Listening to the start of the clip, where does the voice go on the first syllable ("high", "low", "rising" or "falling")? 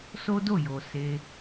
high